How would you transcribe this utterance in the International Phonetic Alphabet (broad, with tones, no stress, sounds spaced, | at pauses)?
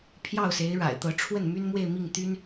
pʰ j ɑ˥˩ ʊ̯ s e˧˥ ɪ̯ ɻ a̰˨˩ ɪ̯ t̪ ɤ˧˥ ʈ͡ʂʰ w ə˥˩ n m y˥ n m w e˥˧ ɪ̯ m i˥˩ ŋ t̪ y˥ n